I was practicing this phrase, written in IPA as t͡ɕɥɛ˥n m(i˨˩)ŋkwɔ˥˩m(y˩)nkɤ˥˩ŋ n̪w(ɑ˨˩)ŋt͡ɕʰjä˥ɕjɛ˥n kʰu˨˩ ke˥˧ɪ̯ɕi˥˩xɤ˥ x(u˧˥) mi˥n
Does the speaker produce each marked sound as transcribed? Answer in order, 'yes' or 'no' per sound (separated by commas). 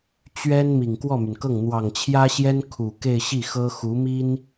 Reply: yes, yes, yes, yes